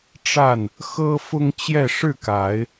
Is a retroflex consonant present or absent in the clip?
present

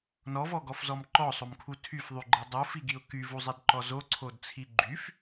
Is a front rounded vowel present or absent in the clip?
present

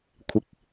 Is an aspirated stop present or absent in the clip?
present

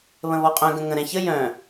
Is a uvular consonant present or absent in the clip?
present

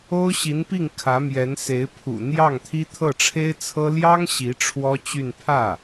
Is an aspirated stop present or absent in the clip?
present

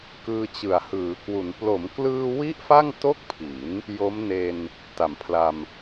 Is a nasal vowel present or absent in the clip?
absent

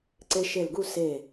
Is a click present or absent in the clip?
present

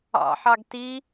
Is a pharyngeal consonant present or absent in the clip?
present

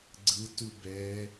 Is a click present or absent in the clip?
present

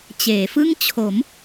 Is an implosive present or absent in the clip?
absent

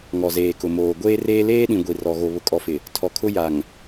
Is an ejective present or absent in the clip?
present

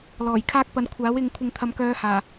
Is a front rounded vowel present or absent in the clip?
present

